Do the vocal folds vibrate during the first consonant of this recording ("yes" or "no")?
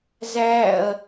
yes